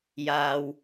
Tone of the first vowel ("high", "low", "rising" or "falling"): low